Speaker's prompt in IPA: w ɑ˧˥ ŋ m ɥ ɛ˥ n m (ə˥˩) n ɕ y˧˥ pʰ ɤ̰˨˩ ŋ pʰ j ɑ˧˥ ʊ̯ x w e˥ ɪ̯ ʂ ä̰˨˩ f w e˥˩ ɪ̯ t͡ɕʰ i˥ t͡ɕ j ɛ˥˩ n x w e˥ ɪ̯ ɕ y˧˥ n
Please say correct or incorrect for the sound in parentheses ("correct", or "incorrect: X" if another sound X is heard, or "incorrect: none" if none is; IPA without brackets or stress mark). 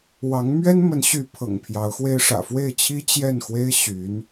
incorrect: ə˧˥